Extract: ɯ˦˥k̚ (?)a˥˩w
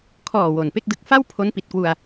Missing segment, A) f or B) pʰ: A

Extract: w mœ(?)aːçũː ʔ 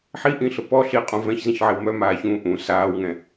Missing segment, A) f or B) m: B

